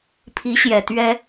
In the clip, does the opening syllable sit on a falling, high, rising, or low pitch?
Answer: rising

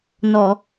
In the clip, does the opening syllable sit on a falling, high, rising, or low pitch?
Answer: low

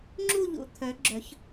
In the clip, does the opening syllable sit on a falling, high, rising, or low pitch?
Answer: falling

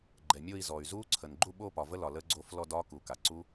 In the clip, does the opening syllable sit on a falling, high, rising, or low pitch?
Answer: low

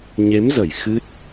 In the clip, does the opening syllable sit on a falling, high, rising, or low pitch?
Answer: rising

